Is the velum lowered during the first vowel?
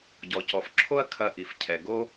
no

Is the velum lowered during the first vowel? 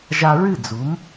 no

